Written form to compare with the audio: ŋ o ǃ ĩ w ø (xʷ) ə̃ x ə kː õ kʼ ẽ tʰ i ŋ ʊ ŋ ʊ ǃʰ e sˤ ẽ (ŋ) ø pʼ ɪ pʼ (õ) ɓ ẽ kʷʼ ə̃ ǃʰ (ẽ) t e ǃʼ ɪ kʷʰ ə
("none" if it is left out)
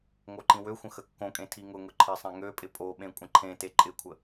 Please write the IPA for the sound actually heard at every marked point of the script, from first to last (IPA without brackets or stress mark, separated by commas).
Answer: xʷ, ŋ, o, ẽ